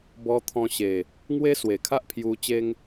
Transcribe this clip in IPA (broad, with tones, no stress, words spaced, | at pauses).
bɔ˧ t̪ʰɔ̃˧ɕe˨˩ | ŋwe˦swe˨˩kʰa˦ʔ pʰju˧ t͡ɕe˦ŋ